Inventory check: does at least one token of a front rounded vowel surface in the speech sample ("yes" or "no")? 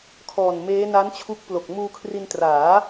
no